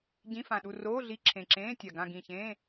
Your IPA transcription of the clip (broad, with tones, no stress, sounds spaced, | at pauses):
ɟ ĩ˧˥˧ f ã˨˩ ɗ u˦˨ r oː˧˥˧ ɮ i˧˥˧ ǁʰ ẽ˨˩ ǁ ẽː˧˥˧ tʲ a˨˩ ɡ ã˦˨ ɡ ĩ˨˩ ç ẽː˧˥˧